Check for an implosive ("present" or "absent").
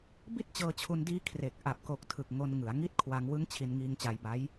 absent